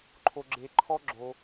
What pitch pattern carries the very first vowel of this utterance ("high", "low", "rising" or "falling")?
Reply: high